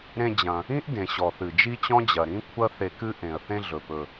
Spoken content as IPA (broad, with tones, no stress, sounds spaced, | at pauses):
ɾ ẽ˧ d͡ʑ ɐ̃˩ | ĩ˥ ʔ d ẽ˩ ɕ ɔ˩ θ ɨ˩ d͡ʒ i˥ t͡ɕ ɔ̃˥ d͡ʑ ɐ˩ ɾ ĩ˥ kʷʰ ɐ˥ θ e˧ k ɨ˥ ʔ ẽ˩ ə̯ θ ẽ˧ ɮ ɵ˩ p ɵ˩